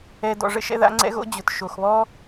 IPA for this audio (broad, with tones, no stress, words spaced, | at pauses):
ɛ˦dɔ̰˧ ʐə̰˦ʃɛ̰˦ða̰˦ ŋ͡ǀɛ̰˦ɣo̰˦ d͡ʑʊ˨t ʃo˨xβɔ˦